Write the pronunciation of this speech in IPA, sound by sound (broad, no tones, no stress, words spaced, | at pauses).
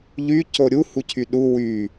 ʎyco ɾʲuhucʰy ɗu wy